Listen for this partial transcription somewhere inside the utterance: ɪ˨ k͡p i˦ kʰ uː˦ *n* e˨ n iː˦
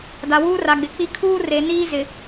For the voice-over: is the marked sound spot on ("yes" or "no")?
no